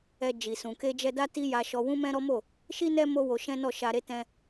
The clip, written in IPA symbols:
ɛ˨ d͡ʒ i˨ s ũ˨ k e˧ d͡ʒ ɛ˧ d a˦ t i˦ j a˧ ʃ ɔ˧ w ũ˦ m ɛ̃˦ ɾ ɔ˦ m o˦˨ | ʃ i˦ n ɛ˦ m o˦ w o˧ ʃ ɛ̃˦ n ɔ˦˨ ʃ a˧ ɾ e˦ t ɛ̃˧

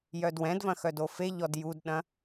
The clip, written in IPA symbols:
j œ d w ɛ̃ d v ɐ̃ x œ d o f e ʎ ɔ d j u d ɗ ɐ̃

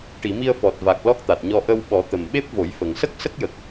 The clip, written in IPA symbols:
ʈ i˨˩˨ m i˧ ə̯ f ɔ˨˩ t̚ v a˨˩ k̚ l ɔ˦˥ k̚ t̪ a˨˩ t̚ ɲ ɔ˧ ʔ ə˧ w ɓ ɔ˨˩˦ t̪ ə˨˩ m ɓ e˦˥ p̚ v o˨˩˦ j f ə˨˩ ŋ s ə˦˥ k̚ s ə˦˥ k̚ j ə˨˩ k̚

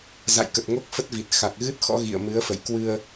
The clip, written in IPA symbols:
z a̰˧˨ j k ə˨˩ t̚ ŋ o˦˥ k̚ f ə˦˥ t̚ v i˨˩ t̚ x a˨˩ k̚ ɣ ɨ˦˥ t̚ x ɔ̰˧˥ ɣ ḭ˧˨ ə̯ m ɨ˨˦ ə̯ f ə̰˧˨ j k w ɨ˧ ə̯

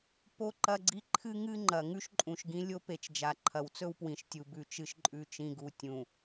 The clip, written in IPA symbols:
p o˦ ǃ ɐ˦ ɡ͡ǀ i˦ ǃʰ ɨ˦ ŋ ɨ˦ ŋ͡ǃ ɐ˨ ŋ ʉ˦ ʃ ǃʼ ũ˨ ʃ ɡ ĩ˦ lʲ o˦ p e˨ t͡ʃ d͡ʒ a˨ ǃʰ ɐ˨ w t͡s ɵ˦ w p w ĩ˨ ʃ tʲ u˨ b ʉ˨ t͡ʃ ɨ˨ ʃ ǃʼ ʉ˨ t͡ʃ ĩ˨ ɡ u˨ tʲ ũ˨

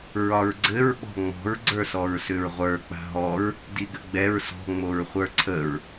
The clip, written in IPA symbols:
ɹ ɒ ɹ ɡ͡ǀ ɘ ɹ ɓ ɔ̤ ŋ͡m ɔ̤ ɹ ɡ͡ǀ ə˞ s ɔ ɹ s ʏ ɹ ʁʷ ə˞ k͡p a̤ ɦ ɔ ɹ | d i ɡ ʏ ɡ͡b ɛ ɹ s ɔ̤ ŋ͡m o ɹ χʷ ə˞ ǀʰ ə ɹ

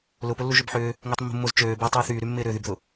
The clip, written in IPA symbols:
l ʊ p ʊ lː u ʒ ø b ħ ʏː | ŋ ɪː tˤ mː ṳ mː ʊ z t͡ʃ øː b ɪː tˤ yː θ yː ɾ y mː ɪː ɾ ʏ ð y b ð ʊ

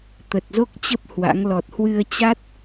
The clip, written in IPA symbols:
t̪ ə˨˩ t̚ z o˦˥ k̚ t͡ɕ ə˦˥ p̚ h w a̰˧˥ ŋ l ɔ˨˩ t̚ h w ɨ˧ ə̯ t͡ɕ a˦˥ t̚

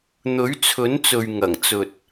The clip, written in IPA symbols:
n̪ ɵ˨˥ ɥ t͡sʰ ɵ˨˥ n t͡s ɵ˨ ɥ ŋ ɐ˨˩ ŋ t͡s ɵ˨ t̚

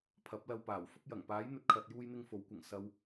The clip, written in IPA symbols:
pʰ ɐ˨˥ p̚ l ɐ˧ w p aː˨˩ w f ʊ˥ k̚ j ɐ˨˩ ŋ p aː˨˥ j n̪ ɵ˧ t̚ kʰ ɐ˨ t̚ j uː˧ j n̪ ɪ˧ ŋ f o˨˥ w kʷ ɐ˨˩ ŋ s ɐ˧ w

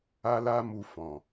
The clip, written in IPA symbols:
a˦ l a˦ m u˧ f ɔ̃˨

